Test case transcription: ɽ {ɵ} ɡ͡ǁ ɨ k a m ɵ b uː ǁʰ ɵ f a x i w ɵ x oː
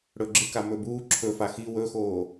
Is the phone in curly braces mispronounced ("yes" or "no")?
no